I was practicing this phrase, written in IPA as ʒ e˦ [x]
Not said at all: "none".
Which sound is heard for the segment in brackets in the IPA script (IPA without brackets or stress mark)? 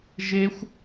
xʷ